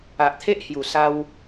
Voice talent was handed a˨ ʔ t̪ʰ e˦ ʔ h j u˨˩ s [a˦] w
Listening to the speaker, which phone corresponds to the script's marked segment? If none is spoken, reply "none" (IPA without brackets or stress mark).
a˦